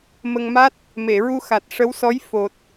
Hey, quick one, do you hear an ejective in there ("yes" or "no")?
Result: no